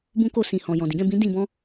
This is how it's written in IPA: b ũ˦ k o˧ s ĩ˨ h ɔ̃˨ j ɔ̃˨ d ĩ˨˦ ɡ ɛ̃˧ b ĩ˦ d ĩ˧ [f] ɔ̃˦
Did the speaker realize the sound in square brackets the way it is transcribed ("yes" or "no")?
no